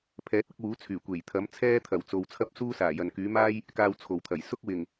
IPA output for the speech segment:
pʰ ɛː˨˥ t̚ ɐ˨˥ k̚ w uː˨˥ t͡sʰ yː˨˩ kʷ e˨˩ j t̪ʰ ɐ˨˥ m t͡sʰ ɛː˥ t̪ʰ ɐ˨˩ w t͡s o˨ w t͡sʰ ɐ˥ p̚ s uː˥ s aː˨˩ j ɐ˨ n k yː˨˥ m aː˥ j | k aː˧ w t͡sʰ o˨˩ w t̪ʰ ɐ˨˩ j s ʊ˥ k̚ w ɪ˨˩ ŋ

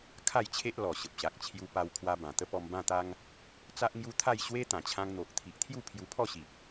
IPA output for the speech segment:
kʰ a˥˧ j t͡ɕʰ e˦ ʔ l ɔ˨˩ ɕ ə˨ p̚ ɕ a˨ k̚ t͡ɕʰ j u˧ p a˧ w kʰ w a˧ b ã˨˩ t̪ ə˦ p ɔ˧ m b ã˥˧ t̪ a˦ ŋ | t͡s a˦ ʔ ŋ j u˦ t̪ʰ a˥˧ j ɕ w e˦ t̪ ã˨˩ t͡ɕʰ ã˧ ŋ n̪ o˨ ʔ t̪ʰ i˨ ʔ t̪ʰ j u˥˧ pʰ j u˧ pʰ ɔ˥˧ ɕ i˨ p̚

